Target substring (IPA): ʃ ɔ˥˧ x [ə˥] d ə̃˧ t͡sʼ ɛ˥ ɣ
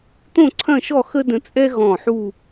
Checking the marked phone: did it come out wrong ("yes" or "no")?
no